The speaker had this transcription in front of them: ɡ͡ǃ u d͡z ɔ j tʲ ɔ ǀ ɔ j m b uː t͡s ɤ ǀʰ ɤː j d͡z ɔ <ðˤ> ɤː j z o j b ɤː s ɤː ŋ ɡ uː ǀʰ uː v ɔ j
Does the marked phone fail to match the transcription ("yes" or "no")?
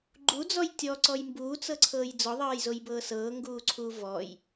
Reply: no